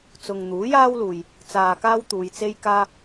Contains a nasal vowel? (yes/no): no